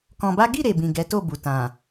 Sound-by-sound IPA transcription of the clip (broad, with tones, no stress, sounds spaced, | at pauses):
k ɔ̃˧ b a˦ ɡ i˦˨ ɾ e˨ b ĩ˨ ɡ ɛ˨˦ t o˦˨ b u˨ t ã˨